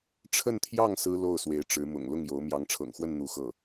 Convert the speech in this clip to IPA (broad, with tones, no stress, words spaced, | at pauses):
ʈ͡ʂʰə˥˧nt̪ʰjɑ˥˩ŋ sɹ̩˥ lo˥˩ʊ̯ swe˧˥ɪ̯ʈ͡ʂɻ̩˧˥ mʊ̰˨˩ŋ lʊ˥˩ŋjo˧˥ʊ̯ mjɑ˧˥ŋʈ͡ʂʰɤ̰˨˩ŋxwə˥˧n n̪u˥˧xɤ˥˩